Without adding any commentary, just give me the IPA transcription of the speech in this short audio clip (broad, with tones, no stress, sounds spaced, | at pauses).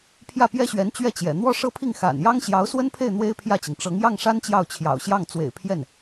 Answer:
pʰ j ä˥˩ p j ɛ˥ ɕ ɥ ɛ˧˥ n t͡ɕ ɥ ɛ˥˩ t͡ɕ j ɛ̰˨˩ n̪ w ɔ˥˧ ʂ ɤ˥˧ pʰ i˥˩ ŋ x a̰˨˩ n j ɑ˥ ŋ ɕ j ɑ˧˥ ʊ̯ s w ə˥ n pʰ e˥˩ ɪ̯ n̪ w e˥ ɪ̯ pʰ j ä˥˩ t͡ɕ i˩ ŋ ʈ͡ʂ ɤ˧˥ ŋ j ɑ˥˩ ŋ ʂ a˥ n t͡ɕ j ɑ˥˩ ʊ̯ t͡ɕʰ j ɑ̰˨˩ ʊ̯ ɕ j ɑ˥˩ ŋ t͡s w ḛ˨˩ ɪ̯ pʰ j ɛ˥˩ n